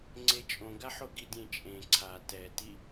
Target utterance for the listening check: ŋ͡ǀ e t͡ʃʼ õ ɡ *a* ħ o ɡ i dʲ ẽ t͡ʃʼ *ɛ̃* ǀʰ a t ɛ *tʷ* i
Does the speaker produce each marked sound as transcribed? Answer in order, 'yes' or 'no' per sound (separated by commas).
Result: yes, no, no